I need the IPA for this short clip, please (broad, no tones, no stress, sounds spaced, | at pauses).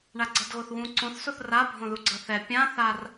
ɳ a ɡ͡ǀ ʌ d ɣ o θ w ũ ǀ õ θ s o θ r a bʱ õ ð u ɡ͡ǀ ʌ θ ɛ pʲ ã θ a r